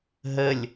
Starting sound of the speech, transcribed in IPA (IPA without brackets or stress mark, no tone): ɦ